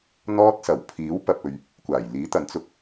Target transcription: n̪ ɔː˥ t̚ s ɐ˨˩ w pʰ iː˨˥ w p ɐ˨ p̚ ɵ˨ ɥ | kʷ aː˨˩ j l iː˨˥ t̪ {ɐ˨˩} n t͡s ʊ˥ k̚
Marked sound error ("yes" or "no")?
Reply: yes